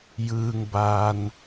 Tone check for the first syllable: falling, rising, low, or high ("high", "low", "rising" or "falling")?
low